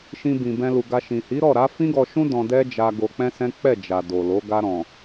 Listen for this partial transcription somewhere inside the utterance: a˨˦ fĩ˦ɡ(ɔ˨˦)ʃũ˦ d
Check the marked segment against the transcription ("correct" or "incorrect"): incorrect